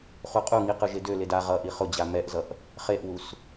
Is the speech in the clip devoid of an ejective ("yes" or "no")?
no